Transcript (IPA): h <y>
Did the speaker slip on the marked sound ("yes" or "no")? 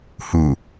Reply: yes